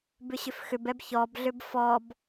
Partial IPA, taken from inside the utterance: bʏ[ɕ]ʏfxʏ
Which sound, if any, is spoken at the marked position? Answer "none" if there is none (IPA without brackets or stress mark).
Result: ɕ